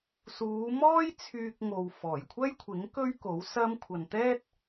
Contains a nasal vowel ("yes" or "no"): no